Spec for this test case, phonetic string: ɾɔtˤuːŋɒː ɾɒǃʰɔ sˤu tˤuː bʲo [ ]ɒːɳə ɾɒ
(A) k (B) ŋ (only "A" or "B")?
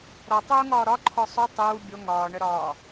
B